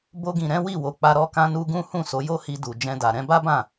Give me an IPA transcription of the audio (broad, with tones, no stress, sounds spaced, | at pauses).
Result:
b o˧ ɡ ĩ˨ ɾ ɛ̃˨˦ w i˦˨ w o˨˦ k͡p a˧ ɾ ɔ˧ k ã˧ n u˧ ɡ ũ˦ h ũ˦˨ s o˨˦ j o˦ h i˧ d u˨ d͡ʒ ɛ̃˧ d a˨ ɾ ɛ̃˨˦ b a˦ b ã˦˨